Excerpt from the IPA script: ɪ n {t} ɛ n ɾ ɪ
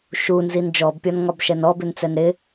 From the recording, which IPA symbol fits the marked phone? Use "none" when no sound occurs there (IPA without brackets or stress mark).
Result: t͡s